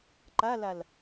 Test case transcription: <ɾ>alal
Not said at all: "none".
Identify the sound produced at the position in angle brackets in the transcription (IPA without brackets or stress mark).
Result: ǃ